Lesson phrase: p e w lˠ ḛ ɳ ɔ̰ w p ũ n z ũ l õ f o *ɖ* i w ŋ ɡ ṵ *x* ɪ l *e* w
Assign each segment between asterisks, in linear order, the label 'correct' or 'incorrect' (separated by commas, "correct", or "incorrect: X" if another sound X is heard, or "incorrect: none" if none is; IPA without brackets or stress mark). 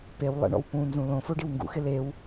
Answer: correct, correct, correct